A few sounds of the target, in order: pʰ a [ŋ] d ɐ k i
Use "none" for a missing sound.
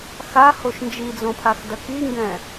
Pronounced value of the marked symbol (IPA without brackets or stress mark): x